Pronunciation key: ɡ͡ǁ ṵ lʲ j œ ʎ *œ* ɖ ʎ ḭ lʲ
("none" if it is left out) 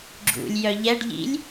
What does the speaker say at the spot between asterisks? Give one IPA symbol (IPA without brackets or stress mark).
ɛ